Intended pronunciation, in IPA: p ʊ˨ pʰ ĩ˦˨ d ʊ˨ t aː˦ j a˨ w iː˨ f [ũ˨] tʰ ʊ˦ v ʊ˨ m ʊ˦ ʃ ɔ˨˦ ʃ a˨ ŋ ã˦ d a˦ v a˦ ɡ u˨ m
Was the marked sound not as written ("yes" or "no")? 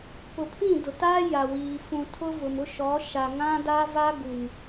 no